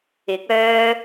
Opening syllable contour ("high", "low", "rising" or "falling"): rising